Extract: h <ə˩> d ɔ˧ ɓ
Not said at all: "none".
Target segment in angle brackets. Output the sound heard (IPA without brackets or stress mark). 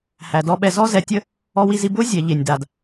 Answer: æ˩